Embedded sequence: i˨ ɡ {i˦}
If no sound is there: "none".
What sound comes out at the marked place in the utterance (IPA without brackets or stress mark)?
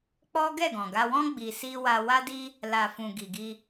i˧